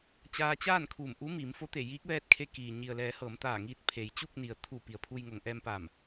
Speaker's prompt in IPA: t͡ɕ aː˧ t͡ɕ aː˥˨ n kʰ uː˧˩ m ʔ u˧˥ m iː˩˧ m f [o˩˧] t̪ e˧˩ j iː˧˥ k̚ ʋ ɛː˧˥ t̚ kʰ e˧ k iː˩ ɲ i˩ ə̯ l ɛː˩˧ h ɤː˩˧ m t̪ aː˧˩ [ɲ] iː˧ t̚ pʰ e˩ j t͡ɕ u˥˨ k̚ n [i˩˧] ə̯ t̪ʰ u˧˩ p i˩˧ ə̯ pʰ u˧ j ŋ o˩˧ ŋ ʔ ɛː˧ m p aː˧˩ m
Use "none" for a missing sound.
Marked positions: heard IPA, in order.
o˧˥, ŋ, i˩

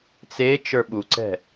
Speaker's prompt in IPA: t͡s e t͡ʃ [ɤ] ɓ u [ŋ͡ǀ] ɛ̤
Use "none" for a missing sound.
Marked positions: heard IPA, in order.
ə˞, ǀ

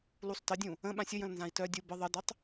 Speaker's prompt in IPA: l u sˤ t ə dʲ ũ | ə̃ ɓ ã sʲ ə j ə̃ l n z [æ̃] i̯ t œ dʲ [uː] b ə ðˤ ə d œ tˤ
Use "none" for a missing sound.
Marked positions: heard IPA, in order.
ã, u

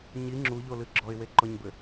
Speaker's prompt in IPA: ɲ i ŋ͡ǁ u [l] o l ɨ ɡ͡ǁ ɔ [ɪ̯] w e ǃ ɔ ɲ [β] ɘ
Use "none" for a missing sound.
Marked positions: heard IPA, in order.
ʎ, ɪ̯, b

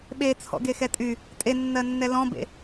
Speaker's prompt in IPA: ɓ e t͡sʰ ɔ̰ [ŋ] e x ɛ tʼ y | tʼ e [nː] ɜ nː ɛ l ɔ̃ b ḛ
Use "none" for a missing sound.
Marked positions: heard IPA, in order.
ɡ, nː

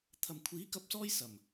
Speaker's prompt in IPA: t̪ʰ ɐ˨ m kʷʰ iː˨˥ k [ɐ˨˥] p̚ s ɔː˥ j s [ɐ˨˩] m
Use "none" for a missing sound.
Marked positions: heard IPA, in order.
ɐ˧, ɐ˨˩

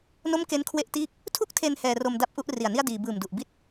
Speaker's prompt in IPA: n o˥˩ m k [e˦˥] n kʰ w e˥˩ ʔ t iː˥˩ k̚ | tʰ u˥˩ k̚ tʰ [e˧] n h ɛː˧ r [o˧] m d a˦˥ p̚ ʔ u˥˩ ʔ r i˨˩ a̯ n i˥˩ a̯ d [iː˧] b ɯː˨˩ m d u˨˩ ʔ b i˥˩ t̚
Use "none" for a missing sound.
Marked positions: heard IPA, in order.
e˦˥, e˧, o˧, iː˧

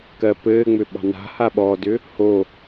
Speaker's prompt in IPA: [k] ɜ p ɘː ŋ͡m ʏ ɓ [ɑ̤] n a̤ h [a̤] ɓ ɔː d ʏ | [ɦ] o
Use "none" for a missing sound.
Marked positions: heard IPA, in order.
k, ɑ̤, a, h

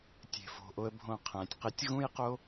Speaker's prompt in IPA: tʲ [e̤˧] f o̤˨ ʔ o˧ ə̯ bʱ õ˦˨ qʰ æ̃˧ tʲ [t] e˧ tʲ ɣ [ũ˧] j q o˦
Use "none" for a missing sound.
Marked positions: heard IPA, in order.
e̤˨, q, ũ˦

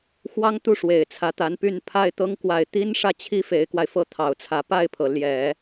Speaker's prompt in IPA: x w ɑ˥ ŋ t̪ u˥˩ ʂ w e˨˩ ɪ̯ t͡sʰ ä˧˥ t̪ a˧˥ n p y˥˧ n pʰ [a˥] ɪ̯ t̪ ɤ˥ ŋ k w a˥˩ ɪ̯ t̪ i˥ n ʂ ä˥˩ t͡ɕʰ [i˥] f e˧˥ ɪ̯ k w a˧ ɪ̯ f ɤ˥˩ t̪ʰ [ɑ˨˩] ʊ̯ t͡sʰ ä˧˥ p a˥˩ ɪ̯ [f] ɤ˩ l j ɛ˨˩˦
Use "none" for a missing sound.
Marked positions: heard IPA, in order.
a˥˩, i˥, ɑ˨˩, pʰ

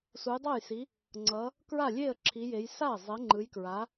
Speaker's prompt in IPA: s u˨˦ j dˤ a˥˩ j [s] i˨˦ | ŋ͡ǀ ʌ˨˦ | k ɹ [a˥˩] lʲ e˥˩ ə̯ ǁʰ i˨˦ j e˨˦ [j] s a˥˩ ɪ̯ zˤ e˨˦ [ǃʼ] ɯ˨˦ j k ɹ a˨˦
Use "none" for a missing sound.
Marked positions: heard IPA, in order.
s, a˥˩, j, ŋ͡ǃ

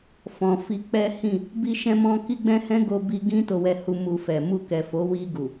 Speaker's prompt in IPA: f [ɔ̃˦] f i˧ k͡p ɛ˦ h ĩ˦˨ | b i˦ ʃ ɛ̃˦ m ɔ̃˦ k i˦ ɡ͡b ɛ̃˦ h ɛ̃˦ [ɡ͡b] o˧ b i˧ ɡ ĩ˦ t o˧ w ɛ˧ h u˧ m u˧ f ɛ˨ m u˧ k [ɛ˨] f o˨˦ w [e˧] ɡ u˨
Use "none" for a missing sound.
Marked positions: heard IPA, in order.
ɔ̃˨, ɡ, ɛ˨, i˧

